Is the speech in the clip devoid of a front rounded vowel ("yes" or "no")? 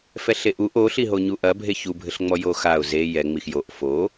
yes